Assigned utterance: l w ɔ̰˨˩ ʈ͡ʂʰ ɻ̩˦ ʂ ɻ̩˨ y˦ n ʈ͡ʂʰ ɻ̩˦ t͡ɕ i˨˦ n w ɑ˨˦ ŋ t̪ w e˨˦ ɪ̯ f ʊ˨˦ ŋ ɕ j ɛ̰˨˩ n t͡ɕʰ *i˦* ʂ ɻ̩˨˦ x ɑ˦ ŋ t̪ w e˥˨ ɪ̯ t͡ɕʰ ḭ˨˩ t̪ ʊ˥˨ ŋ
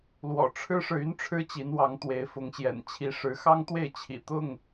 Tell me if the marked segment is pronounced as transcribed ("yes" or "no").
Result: no